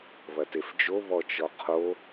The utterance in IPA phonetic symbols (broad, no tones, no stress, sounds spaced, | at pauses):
β ɐ t e f d͡ʒ o β ɔ t͡ʃ ɔ qʰ o